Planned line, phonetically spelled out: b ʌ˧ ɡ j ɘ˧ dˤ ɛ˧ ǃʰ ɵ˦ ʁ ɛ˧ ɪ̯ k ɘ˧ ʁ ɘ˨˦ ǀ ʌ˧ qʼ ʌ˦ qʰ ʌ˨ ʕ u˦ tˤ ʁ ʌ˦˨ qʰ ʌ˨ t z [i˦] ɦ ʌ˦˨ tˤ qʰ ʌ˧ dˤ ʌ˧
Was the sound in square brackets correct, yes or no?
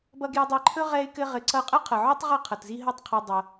yes